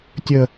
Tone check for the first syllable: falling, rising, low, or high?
low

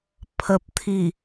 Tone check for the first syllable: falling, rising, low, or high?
low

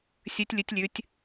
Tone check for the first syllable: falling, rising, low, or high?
rising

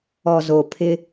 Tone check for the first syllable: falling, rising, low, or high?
low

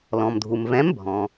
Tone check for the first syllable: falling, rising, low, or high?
low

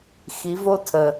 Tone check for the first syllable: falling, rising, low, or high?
rising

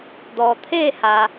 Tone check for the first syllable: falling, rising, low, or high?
low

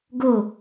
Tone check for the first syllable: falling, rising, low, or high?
falling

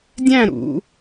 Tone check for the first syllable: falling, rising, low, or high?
falling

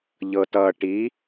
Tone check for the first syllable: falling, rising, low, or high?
low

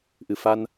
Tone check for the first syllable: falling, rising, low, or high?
low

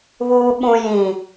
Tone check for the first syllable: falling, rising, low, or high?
low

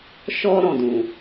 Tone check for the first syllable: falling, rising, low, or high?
high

